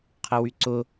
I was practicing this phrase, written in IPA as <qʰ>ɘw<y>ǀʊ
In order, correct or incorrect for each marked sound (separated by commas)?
correct, correct